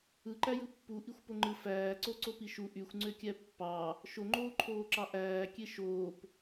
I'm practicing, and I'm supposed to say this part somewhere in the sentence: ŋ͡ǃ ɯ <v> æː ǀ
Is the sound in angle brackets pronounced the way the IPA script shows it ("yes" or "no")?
no